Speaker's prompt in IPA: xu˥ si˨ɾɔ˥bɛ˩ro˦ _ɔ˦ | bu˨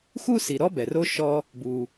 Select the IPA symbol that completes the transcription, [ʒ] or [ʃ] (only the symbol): ʃ